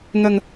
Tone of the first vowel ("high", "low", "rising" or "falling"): low